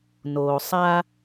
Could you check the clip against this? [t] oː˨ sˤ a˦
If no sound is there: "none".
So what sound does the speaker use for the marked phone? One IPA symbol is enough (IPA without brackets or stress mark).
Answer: n